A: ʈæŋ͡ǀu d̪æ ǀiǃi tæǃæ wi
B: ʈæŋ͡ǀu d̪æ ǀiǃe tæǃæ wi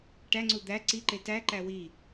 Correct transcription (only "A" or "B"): B